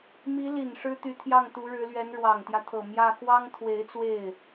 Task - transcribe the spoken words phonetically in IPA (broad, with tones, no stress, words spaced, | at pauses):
mi˧˥li˨˩n ʂɻ̩˥t̪y˧˥t̪ʰjɑ˥˩ŋ t̪u˧˥ɻɻ̩˧˥lɥɛ˧˥n ɻwɑ˨˩ŋt̪jä˦t̪ʰɤ˨˩ mjä˥˩ xwɑ˥ŋt̪ʰwe˧˥ɪ̯t͡swe˥˩ɪ̯